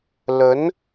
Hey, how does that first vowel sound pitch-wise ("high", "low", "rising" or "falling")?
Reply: rising